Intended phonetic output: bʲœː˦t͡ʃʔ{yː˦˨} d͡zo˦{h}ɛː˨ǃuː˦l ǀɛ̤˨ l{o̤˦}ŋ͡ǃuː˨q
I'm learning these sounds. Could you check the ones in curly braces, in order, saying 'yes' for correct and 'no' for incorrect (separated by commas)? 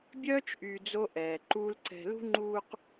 no, no, no